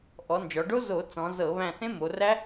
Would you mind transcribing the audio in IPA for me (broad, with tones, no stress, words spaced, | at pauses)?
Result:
ʔɔ˩˧nd͡ʒɔ˩˧ɖo˦˥ zo˧˩˧t͡sɔ̃˩˧zɤ˧˩˧ βæ̃˦˨ θẽ˦˥mo˩˧ræ˦˥